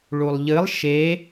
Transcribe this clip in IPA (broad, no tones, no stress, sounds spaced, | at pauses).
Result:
ɭ u lˠ ʎ ɨ lˠ ʃ e